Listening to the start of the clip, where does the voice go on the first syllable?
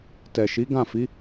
low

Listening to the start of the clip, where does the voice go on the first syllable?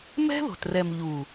high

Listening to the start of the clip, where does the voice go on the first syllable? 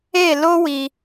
falling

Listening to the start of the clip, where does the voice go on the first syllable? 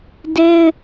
high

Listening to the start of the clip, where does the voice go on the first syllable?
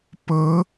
rising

